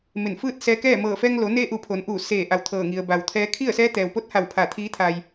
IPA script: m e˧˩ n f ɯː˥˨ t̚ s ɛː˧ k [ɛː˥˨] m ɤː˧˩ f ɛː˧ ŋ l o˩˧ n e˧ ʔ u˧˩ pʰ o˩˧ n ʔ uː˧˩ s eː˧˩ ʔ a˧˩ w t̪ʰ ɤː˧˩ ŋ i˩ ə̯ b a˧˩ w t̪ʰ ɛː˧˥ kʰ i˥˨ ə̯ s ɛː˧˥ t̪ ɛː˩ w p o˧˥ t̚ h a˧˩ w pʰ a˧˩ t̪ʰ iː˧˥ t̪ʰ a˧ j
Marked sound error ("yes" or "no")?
no